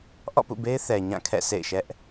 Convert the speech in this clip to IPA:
ʔɔ̰˦˨pṵ˦˨be˦ɪ̯ θɛ˨ ɲã˦˨kʰɛ̰˦˨sʰḛ˦˨ɪ̯ ʃɛ˦ʔ

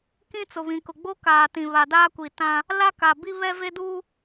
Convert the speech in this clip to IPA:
kĩ˦t͡sʊ˨βĩ˨kʊ˨ ɡ͡bo˦ kaː˨tĩ˨ βa˨ daː˦kʷi˨ tã˦ | la˦ka˨bi˦ βɛ˦ve˦duː˦

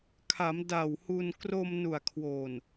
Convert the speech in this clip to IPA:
kʰa˩˦m da˨˩whu˧n kro˧m nu˨˩a̯kʰwoː˨˩n

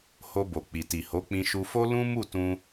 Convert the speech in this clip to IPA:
ho˧bo˨ k͡pi˨ti˨ho˨˦ k͡pĩ˧ʃu˧fo˦ lũ˦mu˦˨tũ˧

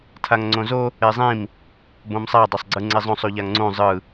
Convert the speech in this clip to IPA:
tʰaŋŋ͡ǀõzo | ezˤĩm | bõmsˤa dˤasˤɡ͡ǀɯŋ͡ǀezˤõsˤ uʎaŋŋ͡ǀũ zˤɯ

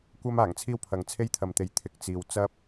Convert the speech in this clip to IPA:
kʷɐ˥m aː˨˩ŋt͡sʰiː˥wpʰɐ˨ŋ t͡sʰe˥jt̪ʰɐ˨mt̪e˨j t̪ʰɪ˨k̚ t͡siː˨wt͡sɐ˥p̚

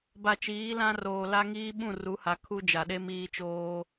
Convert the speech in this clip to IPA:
ba˨t͡ʃiː˨˦lã˦roː˨ la˦ŋiː˦ ɓũ˦˨ru˨˦ha˨ kʰu˦d͡ʒa˨ɗe˦ miː˦t͡ʃoː˦

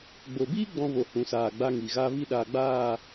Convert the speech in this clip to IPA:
ɡ͡bo˨biː˦ ɡ͡bɔ̃˧vo˨ hũ˨saː˨ɡ͡ba˧ ŋi˨ɣa˦ vi˦ɗaː˧ ɡ͡baː˦˨

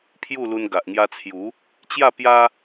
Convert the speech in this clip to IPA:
pʰju˥˧lu˧n ɡa˨ʔŋja˧t͡sʰju˨˦ | t͡ɕja˥˧ pja˦

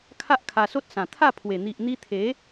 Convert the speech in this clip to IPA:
kʰa˦ʔkʰa˧so˦t̚sã˨˩ t̪ʰa˥˧pʰwe˨˩ n̪i˨ʔn̪i˧t̪ʰe˨˦

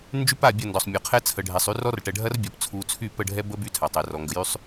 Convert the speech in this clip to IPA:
nd͡ʒy˦pa˦˨bʲɐ˦˨ndɔ˨sˤ mʲɔ˨qʰɛ˦ t͡sʰə˨ ɖʱɛ˨sˤy˦ rɔ˦rʈɛ˨ ɖʱɐ˦rbʲɔ˨p t͡sʰu˨t͡sʰy˦˨ pə˦˨ɖʱɛ˦ bə˦ by˦ tʰa˨tˤɛ˨rɔ˨ ŋɡə˨jy˦sˤ

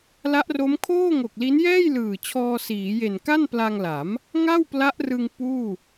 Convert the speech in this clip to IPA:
la˦˥ʔro˦˥mkʰoː˥˩ŋo˨˩k̚ li˦˥njɛː˥˩jlɯː˨˩ t͡ɕʰɔː˧siː˩˦je˨˩n ka˥˩npla˧ŋla˩˦m | ŋa˥˩wpla˦˥ʔrɯ˧ŋ puː˥˩

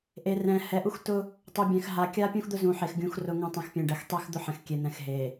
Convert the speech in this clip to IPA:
ʔe˨rɛ̃˨ hɛ˨ʔu˦xtʊ˦ | tˤu˨bʲɛ̃˨x ɦa˨kʲa˦ pʲũ˦xd̪ʊ˦zũ˨ħe˨x ɡʲũ˨xrʊ˨ŋũ˨ tˤẽ˨xpʲɛ̃˨ɖɛ˨x tˤe˦xd̪ʊ˦ ħɛ̃˨xkʲe˨ n̪ɛ̃˨x ɦe˨

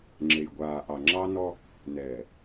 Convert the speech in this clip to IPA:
ŋ͡ǁe˨jɡʷaː˨ʔɑ˨ ŋ͡ǁɑ˦nɔ˦ | nɛː˨

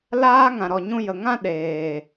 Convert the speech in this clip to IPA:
laː˦ ŋã˨ɾɔ˨ɲũ˧ jə˨ŋã˦ ɗeː˨

